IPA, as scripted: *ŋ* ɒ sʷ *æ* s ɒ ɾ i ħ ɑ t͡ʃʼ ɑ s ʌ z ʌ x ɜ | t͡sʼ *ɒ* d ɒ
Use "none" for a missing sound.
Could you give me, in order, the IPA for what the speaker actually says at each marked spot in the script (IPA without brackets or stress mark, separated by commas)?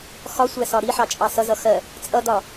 x, æ, ʌ